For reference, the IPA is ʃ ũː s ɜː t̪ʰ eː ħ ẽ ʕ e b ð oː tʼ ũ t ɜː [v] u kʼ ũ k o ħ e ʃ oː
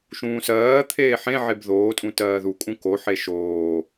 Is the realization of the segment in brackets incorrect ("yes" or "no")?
yes